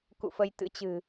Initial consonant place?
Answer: velar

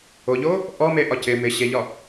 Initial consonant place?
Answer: palatal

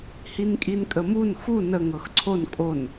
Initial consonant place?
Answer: glottal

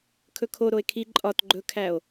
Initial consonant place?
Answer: velar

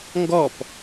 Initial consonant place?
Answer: velar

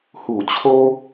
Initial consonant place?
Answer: glottal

